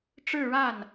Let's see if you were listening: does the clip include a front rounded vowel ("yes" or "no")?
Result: no